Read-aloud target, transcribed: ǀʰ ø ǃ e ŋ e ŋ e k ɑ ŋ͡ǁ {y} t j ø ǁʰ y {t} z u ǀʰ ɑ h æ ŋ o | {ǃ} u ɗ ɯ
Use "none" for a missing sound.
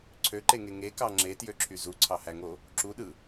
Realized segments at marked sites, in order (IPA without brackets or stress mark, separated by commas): e, none, ǁ